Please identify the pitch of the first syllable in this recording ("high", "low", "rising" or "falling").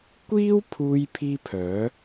high